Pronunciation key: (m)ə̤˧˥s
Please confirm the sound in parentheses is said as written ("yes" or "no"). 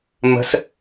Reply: yes